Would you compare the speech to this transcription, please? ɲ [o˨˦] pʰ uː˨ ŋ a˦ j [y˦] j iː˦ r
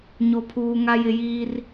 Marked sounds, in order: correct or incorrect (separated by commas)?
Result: incorrect, incorrect